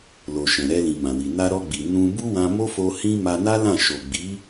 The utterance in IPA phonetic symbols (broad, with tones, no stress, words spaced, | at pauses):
lo˨ ʃɛ̃˨ɾɛ˧lĩ˨ mã˨wi˨ na˧ɾɔ˧ɡ͡bi˨ nũ˧ bu˦wã˧mo˦fo˧ hĩ˧ ma˧na˦lã˦˨ ʃo˨ ɡ͡bi˨˦